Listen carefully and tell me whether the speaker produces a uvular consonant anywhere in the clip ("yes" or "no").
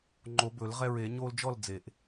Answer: yes